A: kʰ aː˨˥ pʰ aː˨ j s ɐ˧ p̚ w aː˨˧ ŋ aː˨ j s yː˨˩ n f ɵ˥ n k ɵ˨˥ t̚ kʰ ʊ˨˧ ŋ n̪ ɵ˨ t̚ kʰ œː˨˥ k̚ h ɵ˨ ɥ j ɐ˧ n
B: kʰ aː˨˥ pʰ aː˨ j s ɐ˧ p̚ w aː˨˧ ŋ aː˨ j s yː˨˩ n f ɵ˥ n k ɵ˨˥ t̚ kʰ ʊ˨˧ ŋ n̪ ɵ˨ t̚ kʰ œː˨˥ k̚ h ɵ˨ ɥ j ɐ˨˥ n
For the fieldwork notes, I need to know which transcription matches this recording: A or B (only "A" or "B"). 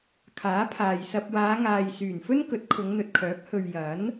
B